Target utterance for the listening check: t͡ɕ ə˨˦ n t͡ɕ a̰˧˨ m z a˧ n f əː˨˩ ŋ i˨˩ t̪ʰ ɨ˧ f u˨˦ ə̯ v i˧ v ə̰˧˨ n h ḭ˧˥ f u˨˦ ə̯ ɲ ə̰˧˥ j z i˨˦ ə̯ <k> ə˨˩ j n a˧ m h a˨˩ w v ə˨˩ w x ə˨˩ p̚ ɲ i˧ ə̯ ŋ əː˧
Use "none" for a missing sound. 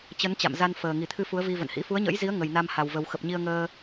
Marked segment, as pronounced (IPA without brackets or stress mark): ŋ